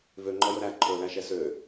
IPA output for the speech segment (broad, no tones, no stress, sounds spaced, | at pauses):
v ø ŋ͡ǃ ɔ j ɵ ɾ æ ǃʰ ɵ l æ ʃ ɛ s ø